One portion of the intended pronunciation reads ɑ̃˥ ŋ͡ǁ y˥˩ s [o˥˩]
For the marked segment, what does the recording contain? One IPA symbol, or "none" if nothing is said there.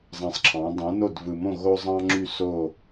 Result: o˥˩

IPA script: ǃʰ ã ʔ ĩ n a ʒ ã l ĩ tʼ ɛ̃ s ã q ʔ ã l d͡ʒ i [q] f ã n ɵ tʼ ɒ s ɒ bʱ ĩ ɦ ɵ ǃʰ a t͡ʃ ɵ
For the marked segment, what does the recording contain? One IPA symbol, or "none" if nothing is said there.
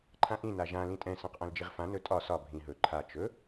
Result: ʁ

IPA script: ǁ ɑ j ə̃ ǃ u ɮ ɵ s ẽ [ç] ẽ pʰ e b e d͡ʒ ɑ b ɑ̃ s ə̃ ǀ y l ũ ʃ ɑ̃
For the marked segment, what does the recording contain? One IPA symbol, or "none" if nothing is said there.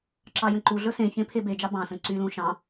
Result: ç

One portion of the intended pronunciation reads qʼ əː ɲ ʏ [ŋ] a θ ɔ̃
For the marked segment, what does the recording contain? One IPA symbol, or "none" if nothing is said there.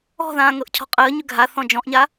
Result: ɡʱ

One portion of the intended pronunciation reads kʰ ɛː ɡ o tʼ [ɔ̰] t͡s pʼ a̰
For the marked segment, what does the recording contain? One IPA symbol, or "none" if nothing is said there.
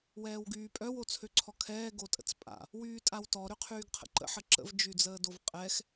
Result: ə̰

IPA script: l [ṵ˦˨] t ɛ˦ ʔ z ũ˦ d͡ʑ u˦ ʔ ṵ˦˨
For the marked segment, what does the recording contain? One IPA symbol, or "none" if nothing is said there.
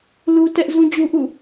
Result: u˦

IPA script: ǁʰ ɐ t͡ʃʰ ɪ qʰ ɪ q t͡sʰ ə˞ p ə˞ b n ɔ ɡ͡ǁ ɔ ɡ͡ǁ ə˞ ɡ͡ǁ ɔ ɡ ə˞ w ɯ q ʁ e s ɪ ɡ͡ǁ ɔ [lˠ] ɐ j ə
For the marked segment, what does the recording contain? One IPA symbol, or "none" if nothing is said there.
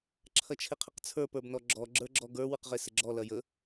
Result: l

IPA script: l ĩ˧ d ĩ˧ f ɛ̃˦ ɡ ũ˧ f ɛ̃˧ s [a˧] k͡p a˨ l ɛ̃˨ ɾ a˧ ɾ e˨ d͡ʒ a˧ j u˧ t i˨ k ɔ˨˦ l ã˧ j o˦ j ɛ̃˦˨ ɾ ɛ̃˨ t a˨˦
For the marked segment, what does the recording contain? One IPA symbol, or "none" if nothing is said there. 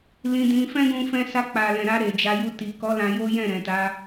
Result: a˧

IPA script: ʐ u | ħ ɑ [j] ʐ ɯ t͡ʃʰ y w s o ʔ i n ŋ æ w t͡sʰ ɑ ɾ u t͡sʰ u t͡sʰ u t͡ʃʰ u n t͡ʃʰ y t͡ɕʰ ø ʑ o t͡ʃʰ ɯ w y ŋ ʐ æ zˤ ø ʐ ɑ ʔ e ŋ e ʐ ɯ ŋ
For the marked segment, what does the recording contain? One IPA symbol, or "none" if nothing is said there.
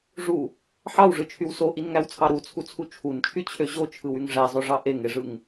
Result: w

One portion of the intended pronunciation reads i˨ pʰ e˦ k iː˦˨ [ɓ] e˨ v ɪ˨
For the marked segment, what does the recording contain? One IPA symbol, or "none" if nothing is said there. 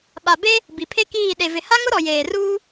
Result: ɗ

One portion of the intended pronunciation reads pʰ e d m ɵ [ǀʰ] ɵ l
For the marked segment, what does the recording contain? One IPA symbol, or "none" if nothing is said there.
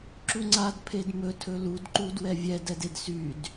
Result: tʰ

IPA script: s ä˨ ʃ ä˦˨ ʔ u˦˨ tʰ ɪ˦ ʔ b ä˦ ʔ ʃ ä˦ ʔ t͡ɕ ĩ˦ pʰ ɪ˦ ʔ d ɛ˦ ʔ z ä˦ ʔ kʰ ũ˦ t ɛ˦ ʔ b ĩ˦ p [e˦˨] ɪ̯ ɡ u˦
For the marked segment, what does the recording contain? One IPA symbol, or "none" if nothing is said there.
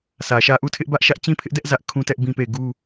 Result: e˦˨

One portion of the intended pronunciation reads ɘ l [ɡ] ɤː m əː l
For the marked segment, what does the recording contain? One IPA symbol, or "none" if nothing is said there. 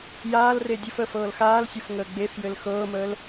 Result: x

